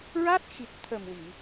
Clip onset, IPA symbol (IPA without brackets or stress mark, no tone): ɹ